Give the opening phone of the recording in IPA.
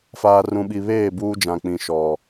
f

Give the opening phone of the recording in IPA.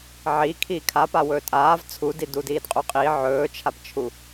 ʕ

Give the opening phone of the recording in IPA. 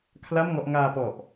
kʰ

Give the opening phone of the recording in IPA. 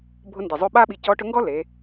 bʱ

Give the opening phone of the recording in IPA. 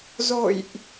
z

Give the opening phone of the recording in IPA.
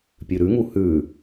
pʲ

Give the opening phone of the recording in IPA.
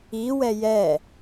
i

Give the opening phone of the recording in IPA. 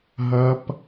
ɦ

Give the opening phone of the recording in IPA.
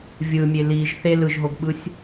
vʲ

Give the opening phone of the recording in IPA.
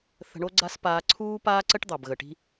θ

